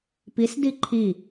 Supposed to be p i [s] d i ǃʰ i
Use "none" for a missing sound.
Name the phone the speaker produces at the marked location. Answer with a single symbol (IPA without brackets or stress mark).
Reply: s